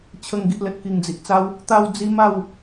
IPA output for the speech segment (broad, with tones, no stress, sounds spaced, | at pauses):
t͡ɕʰ ə˨˩ ŋ ɡ i˨ ʔ l ə˨ t̚ k i˨˩ ŋ d͡z i˨ ʔ t͡s a˦ w | t̪ a˧ w d͡z i˧ m a˥˧ w